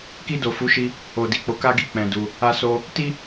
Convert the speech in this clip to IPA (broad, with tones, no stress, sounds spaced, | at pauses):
k i˧ d o˨ f u˨˦ ʃ i˧ | o˨ d i˨ k͡p o˨˦ k a˦ ɡ i˦ k͡p ɛ̃˧ d u˧ | a˧ s o˧ | t i˦